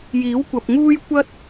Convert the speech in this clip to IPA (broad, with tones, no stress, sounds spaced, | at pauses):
j iː˨˥ w kʷ ɐ˨ p̚ ŋ uː˥ j kʷ ɐ˥ t̚